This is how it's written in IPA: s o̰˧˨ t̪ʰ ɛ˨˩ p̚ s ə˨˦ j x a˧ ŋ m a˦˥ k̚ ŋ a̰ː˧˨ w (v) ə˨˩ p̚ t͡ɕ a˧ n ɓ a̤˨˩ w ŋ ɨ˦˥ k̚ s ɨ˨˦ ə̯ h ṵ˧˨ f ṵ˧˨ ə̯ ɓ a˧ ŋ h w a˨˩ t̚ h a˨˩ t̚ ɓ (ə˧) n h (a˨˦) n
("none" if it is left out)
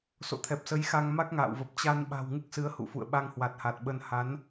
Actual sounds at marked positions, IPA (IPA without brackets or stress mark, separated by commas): v, ə˧, a˨˦